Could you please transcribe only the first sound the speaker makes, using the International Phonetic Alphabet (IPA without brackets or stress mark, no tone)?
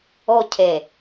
o